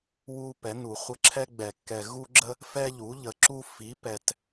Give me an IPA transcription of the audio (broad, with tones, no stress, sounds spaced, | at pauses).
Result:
w u˦ p ɛ˩˥ n u˨˩˦ χʷ ə˦ ǁʰ ɛ˦ ɡ͡b ɛ˨˩˦ kː ɛ˨ ɣ u˦ ɡ͡ǁ ə˦ | f ɛ˦ ʎ u˩˥ ʎ ə˨ ǁ u˦ f i˩˥ p ɛ˨ t